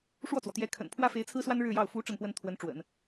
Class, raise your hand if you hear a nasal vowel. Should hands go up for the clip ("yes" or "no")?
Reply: no